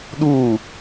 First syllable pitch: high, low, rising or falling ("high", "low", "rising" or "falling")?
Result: falling